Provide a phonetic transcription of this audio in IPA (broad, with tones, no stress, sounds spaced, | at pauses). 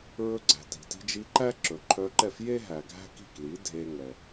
ɹ ɵ˧ ɡ͡ǀ æ̤˩ t i̤˩ t i̤˧ d͡ʒ i˧ ǃ æ˥ ǁ ɵ˩ ǃʰ œ˧ ǃ ɛ˥˩ f j e˥ ɦ æ˩ ɡʱ æ̤˥ k i̤˥˩ k l i˩˥ dʱ e˧ ŋ ɛ˩